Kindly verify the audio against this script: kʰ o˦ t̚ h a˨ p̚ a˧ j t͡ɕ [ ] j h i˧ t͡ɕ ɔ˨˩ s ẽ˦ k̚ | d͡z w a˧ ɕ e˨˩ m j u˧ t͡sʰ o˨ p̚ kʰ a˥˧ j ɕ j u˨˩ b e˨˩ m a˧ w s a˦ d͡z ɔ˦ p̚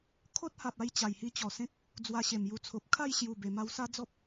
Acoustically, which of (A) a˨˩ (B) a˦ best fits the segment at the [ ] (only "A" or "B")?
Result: A